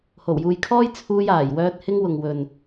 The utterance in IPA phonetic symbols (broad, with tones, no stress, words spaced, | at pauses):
ho˨˩wjuː˨jkʰɔː˥j t͡sʰuː˧jaː˨˩jwœː˧t̚ hɪ˧ŋwʊ˨ŋ wɵ˨n